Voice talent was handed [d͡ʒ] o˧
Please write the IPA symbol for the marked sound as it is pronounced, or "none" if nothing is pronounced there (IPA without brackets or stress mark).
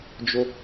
d͡ʒ